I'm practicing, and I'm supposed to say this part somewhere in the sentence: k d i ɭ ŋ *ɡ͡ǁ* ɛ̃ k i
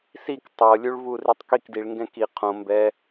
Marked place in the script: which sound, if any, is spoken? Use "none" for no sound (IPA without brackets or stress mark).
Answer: ɡ